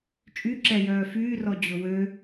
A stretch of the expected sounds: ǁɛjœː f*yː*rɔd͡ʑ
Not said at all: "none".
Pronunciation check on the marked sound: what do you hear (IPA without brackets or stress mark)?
yː